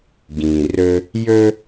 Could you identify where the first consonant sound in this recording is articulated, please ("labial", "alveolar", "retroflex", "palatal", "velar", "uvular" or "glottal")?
velar